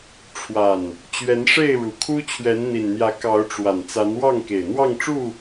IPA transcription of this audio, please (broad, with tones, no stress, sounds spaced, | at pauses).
ʈ͡ʂʰ w a˨˩ n | t͡ɕ ɥ ɛ˨˦ n ʂ e˥˨ ɪ̯ ɻ u˨˩ kʰ u˦ t͡ɕʰ ɥ ɛ˨˦ n n̪ i˨˩ n n̪ j ä˨˦ k ɑ˨˦ ʊ̯ ʈ͡ʂ w a˨˩ n t͡s a˨˦ n w ɑ˥˨ ŋ k e˨˩ ɪ̯ n̪ w ɑ˥˨ ŋ ʈ͡ʂ u˥˨